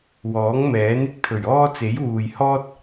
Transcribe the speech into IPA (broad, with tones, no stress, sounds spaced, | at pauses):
w ɔː˨˥ ŋ m ɛː˨˥ n ɪ˨˥ k̚ t̪ʰ ɵ˨˩ ɥ ɔː˥ t͡s e˨˥ j w uː˨ j h ɔː˥ t̚